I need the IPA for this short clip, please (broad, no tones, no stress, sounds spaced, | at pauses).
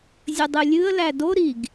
zʲ ə dˤ ɨ lʲ ɨ ə̯ l æ d o ɾ i ɡ